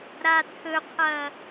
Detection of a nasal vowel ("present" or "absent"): absent